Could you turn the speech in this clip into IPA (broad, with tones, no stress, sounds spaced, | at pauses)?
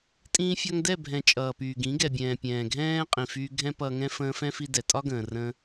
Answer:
tʼ ĩː˧ fʲ ɒ˧ ŋ d ɛ˦˨ bʱ ɛ̃˨ t͡ʃʼ ʌː˨ p yː˨ ɡ ĩ˨˦ ɡ ɛ˨ bʲ ɛ̃ː˨ pʲ ɛ̃ː˨ ɡʱ ɛ̃ː˦ qʼ ĩ˨ f yː˧ ɡʱ ɛ̃˦ p ʌː˧ ŋ ɛ̃˦ f ə̃ː˧ f ɛ̃˦ f i˧ d ɛ˨ tʼ ɒ˦ ɡ ə̃ː˨ r ə̃˧